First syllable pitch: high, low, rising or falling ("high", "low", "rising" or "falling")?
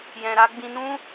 low